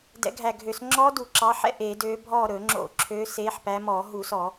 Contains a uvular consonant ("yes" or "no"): no